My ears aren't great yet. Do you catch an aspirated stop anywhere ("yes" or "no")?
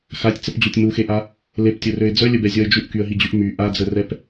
no